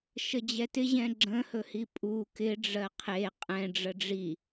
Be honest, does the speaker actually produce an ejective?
yes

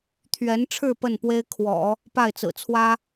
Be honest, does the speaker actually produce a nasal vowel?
no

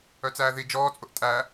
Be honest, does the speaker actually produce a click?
no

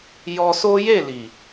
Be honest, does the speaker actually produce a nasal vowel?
no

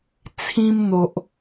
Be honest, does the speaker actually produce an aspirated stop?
yes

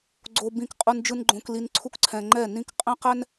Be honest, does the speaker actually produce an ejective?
yes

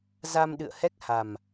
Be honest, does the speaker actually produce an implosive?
yes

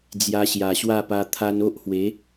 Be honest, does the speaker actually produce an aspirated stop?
yes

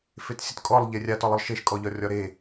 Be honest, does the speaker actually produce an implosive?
no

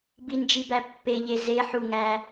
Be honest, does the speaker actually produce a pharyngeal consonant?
yes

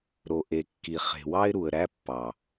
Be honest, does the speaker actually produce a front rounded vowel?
no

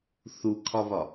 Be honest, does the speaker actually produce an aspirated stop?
yes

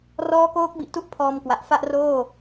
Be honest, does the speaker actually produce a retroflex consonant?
no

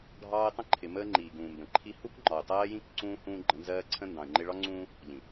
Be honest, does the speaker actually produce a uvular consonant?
no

